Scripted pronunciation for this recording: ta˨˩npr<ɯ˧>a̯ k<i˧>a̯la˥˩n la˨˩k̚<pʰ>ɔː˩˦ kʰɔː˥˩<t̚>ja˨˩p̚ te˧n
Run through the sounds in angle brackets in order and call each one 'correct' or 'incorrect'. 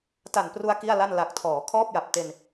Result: incorrect: u˧, incorrect: i˥˩, incorrect: tʰ, incorrect: p̚

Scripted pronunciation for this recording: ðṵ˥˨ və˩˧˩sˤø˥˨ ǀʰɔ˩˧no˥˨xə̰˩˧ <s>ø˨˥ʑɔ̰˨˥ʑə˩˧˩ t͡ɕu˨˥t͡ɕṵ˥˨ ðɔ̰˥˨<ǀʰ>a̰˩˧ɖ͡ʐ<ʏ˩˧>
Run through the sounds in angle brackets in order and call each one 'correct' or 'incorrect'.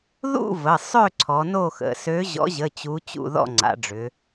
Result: correct, incorrect: ŋ͡ǀ, correct

